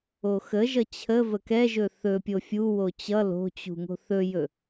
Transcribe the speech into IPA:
o x ə ʒ ʌ t͡ɕʰ ə v ə k ɛ ʒ ɵ θ ɵ pʲ o fʲ u w o t͡ɕ ʌ l o̤ t͡ɕ ṳ ŋ o̤ θ ɵ j ɵ

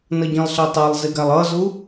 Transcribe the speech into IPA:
n ʌ ɟ ĩ lˠ ɬ ɛ tˤ ɛ lˠ z i ɡ a lˠ ʌ z u

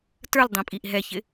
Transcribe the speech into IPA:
t ə˞ l dˤ ĩ pʼ i ʔ ɦ ɛ ç ɪ

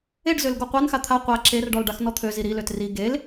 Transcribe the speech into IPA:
e ɖ z ø l ɡ o qʷ a n x a t̪ʰ a qʷ a ǁ e r ɖ ɔ l ɖ a x n ɔ t̪ʰ ø z i ɾ i l ø t r i ɡ e l

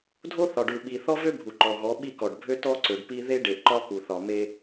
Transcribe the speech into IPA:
dʱ o˦ θ ɒ˨ ɖ u˨ ɓ i˨ θ ɔ˦ v ø˦ bʱ u˨ ǃ ɔ˨ ɣ ɔ˨˦ ɓ i˦˨ k ɔ˨ ɖ bʱ ø˦ t ɔ˦ ǀ ø˨ ɖ p i˦ ð e˦ ɖ e˨ ʔ ǃ ɒ˦ k u˨ θ ɒ˨ m e˦

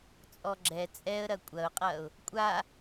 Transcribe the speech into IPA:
t͡sʼ ɔ ɡ͡ǁ ɛ t͡sʼ ɛ ə̯ ɾ ɐ kʷʼ ɐ ʊ̯ qʼ ɐ ʊ̯ | kʷʼ a

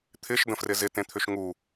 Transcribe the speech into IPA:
t̪ʰ ɪ ʃ d ə̃ f r ɪ z ɪ t ẽ t̪ʰ ʏ ʃ ŋ u

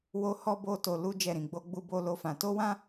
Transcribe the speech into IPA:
w o˦ h ɔ˦ b o˦ t o˧ l u˦ d͡ʒ ɛ˦˨ ɾ ĩ˧ ɡ͡b o˦ ɡ͡b u˦ b o˦ l o˦ f ã˧ t o˦ w ã˦

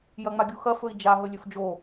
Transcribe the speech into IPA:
j ɐ ŋ͡m a ɡʲ u x ɐ f ɵ i̯ d͡ʒ a ɦ ɵ lʲ ɵ f d͡ʒ o

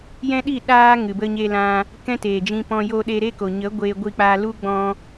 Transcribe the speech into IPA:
j ɛ̃˦ ɗ i˦˨ ɗ aː˦ ŋ ɨ˨ b ə˧ ɲ e˧ l ã˧ | k ɛ̃˦ t eː˨ d͡ʒ ĩ˧ p ɔ̃˧ j o˧ ɗ e˧ ɾ e˦ k o˨ ɲ ə˨˦ ɡʷ eː˧ ɡʷ i˧ k͡p aː˧ l u˦ ɡ͡b ɔ̃˦

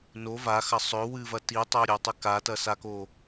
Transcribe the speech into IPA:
n o v a x ɐ sˤ ɵ w ɨ v ɐ t i tˤ o ɾʲ o tˤ ɨ k a t ɐ s a k o

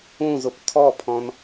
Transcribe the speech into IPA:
ũ z ʊ p tʰ ɔ pʰ ɔ̃ n

